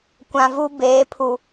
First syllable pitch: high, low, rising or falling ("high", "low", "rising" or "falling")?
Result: low